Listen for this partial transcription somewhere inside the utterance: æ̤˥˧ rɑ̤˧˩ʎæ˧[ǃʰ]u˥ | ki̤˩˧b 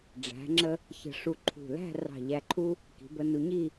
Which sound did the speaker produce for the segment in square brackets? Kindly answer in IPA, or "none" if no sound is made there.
ǃʰ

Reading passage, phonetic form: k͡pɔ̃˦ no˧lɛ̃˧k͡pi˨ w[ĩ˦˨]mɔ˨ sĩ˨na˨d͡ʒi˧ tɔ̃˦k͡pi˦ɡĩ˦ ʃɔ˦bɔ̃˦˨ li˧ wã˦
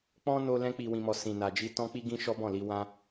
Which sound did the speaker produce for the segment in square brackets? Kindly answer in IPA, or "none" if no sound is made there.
ĩ˨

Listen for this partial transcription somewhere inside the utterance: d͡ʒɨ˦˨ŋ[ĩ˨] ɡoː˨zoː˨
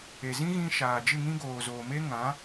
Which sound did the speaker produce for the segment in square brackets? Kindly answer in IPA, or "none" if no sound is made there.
ĩ˦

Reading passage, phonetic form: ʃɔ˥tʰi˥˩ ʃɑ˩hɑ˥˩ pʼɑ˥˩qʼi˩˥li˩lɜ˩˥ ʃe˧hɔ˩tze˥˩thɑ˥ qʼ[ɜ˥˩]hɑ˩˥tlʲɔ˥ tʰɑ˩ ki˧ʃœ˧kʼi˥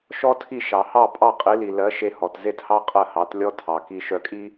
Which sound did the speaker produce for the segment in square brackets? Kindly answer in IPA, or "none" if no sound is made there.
ɜ˥˩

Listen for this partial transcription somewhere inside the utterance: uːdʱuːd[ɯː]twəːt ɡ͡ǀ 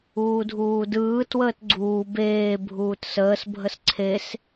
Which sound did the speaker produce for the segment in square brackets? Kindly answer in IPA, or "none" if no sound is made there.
ɯː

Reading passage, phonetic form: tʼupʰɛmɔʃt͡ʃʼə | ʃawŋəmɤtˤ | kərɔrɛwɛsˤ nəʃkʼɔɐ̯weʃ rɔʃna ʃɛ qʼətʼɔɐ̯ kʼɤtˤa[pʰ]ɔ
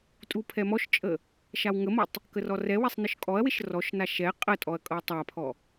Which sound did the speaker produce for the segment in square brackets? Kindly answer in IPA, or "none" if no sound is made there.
pʰ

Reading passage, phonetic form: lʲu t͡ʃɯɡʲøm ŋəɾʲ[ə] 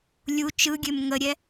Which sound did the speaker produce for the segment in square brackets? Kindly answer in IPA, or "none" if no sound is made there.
ɛ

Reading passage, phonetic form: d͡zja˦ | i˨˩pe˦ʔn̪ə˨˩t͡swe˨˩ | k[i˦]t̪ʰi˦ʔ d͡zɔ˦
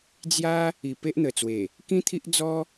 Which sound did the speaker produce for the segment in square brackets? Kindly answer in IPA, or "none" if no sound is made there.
ĩ˦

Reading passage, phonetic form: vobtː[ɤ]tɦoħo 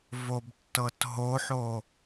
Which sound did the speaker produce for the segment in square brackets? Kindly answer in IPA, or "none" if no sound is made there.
ɤ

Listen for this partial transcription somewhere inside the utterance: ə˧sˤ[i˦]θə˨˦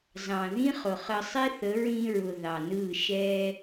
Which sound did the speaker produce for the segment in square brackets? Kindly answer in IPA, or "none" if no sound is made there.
i˦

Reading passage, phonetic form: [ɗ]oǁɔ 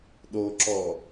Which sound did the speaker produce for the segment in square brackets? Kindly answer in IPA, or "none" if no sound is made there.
ɗ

